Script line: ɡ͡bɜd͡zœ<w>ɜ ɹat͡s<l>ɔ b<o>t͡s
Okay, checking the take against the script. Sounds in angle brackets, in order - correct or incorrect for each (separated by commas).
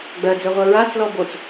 incorrect, correct, correct